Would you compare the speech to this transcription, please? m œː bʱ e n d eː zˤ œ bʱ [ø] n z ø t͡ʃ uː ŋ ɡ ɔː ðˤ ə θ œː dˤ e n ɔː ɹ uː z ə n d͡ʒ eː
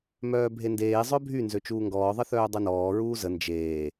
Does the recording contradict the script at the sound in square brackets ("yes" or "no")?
yes